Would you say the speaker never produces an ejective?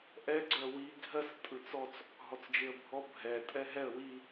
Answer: no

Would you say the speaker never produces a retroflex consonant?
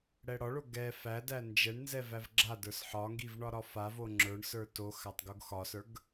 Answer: no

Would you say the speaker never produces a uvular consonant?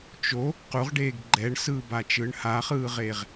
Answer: no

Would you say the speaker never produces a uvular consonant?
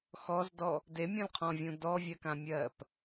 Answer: no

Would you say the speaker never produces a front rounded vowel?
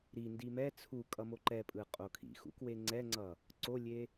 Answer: yes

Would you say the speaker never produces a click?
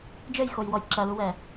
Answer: no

